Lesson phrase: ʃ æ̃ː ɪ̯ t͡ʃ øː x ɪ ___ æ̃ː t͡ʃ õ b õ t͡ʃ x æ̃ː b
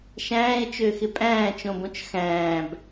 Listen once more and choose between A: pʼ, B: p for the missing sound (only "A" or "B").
A